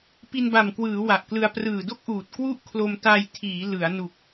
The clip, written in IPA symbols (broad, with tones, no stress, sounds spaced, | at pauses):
p i˧ n b a˨˩ m k w ɯː˩˦ w a˨˩ ʔ k l ɯ˧ a̯ p r ɯː˨˩ d o˥˩ k̚ ʔ uː˨˩ t̚ k w u˥˩ ʔ kʰ l o˧ m t a˧ j tʰ iː˩˦ l ɯ˩˦ a̯ n u˨˩ k̚